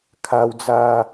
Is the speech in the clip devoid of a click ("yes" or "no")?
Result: yes